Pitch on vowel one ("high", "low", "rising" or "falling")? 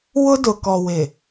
high